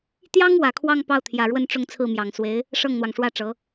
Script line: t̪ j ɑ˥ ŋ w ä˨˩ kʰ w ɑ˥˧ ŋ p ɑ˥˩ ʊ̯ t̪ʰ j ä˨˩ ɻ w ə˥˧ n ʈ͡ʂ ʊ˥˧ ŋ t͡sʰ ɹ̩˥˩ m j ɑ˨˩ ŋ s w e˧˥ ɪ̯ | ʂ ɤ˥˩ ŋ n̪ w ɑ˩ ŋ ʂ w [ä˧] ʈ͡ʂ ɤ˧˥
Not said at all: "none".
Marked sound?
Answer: ä˥˩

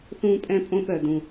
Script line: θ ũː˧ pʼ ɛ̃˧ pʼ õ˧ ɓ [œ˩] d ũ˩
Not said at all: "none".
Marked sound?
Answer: œ˩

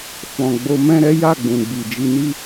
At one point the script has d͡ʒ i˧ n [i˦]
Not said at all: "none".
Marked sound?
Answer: i˦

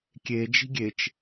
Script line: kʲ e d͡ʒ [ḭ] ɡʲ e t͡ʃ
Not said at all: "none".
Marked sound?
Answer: i̤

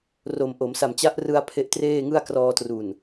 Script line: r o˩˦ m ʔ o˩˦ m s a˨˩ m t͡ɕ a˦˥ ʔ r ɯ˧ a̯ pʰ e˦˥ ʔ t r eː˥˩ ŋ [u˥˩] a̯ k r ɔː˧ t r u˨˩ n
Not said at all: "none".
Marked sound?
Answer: ɯ˥˩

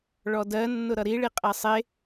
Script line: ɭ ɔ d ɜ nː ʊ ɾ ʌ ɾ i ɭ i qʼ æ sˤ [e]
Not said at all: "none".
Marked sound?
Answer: e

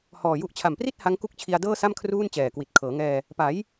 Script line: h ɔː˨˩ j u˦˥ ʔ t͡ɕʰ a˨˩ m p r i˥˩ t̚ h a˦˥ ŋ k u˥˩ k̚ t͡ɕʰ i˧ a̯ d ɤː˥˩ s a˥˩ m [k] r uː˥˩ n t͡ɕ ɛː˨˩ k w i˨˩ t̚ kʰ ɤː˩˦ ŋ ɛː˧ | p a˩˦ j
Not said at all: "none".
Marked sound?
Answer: kʰ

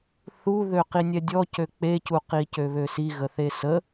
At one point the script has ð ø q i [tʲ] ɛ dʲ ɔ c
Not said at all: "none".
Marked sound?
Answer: nʲ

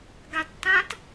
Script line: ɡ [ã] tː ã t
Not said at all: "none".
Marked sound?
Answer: a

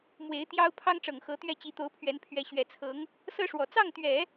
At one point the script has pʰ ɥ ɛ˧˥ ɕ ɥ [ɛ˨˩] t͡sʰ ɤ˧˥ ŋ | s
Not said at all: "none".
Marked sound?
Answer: ɛ˨˩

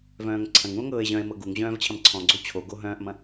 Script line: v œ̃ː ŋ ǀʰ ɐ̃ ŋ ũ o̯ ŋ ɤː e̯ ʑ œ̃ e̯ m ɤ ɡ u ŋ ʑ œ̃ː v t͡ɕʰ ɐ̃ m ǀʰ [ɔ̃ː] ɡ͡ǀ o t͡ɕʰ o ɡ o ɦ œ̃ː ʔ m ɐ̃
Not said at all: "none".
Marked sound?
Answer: ɔ̃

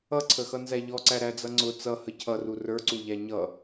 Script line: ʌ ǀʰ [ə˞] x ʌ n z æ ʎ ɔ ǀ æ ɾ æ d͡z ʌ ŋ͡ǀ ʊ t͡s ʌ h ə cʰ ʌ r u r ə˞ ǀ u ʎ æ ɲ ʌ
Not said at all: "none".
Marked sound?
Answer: ə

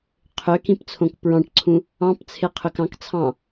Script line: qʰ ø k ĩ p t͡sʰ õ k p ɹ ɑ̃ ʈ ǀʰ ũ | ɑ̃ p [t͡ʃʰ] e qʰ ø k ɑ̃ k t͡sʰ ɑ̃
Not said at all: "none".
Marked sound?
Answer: t͡sʰ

